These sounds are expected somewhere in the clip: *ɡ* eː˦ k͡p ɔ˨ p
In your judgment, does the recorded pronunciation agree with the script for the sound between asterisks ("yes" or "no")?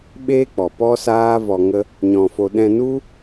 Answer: no